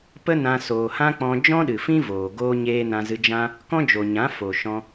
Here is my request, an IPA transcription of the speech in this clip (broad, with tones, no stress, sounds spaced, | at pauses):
p ə˦ n ã˧ s oː˨ h ã˦ k͡p ɔ̃˧ d͡ʒ ɔ̃˦ ɗ ɨ˨ f ĩ˦ v oː˨ ɡ oː˦ ɲ eː˦ n ã˧ z ɨ˧ d͡ʒ ã˦ | k ɔ̃˦ d͡ʒ o˨ ɲ ã˨˦ f o˨ ʃ ɔ̃˧